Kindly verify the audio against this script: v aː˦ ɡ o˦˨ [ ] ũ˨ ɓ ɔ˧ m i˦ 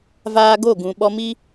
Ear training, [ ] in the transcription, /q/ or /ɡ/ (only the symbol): ɡ